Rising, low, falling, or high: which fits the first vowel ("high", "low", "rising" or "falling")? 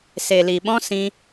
low